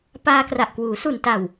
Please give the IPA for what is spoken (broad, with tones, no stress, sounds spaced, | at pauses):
p aː˧ k r a˨˩ ʔ k w uː˩˦ s u˨˩ n t a˨˩ w